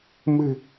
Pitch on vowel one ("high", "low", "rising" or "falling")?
low